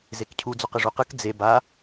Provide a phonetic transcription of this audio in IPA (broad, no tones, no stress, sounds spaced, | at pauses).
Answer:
z e k cʰ u d͡z o q ɯ ʐ u q ɯ k d͡z e b a